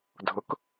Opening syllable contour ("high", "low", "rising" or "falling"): rising